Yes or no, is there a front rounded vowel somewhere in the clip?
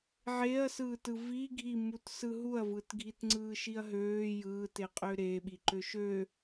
yes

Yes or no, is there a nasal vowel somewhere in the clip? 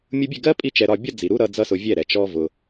no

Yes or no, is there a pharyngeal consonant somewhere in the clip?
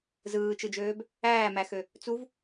no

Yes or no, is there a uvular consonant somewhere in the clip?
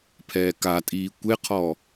yes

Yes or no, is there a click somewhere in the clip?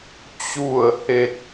no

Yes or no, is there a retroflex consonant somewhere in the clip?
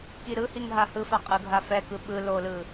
no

